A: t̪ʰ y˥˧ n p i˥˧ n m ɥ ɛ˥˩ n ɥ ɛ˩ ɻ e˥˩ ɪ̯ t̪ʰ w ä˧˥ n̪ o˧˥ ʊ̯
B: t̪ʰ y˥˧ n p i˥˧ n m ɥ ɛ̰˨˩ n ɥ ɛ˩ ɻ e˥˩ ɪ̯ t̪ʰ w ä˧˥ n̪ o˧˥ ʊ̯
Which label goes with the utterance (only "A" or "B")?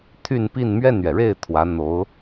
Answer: A